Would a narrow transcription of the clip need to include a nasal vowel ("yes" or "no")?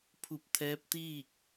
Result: no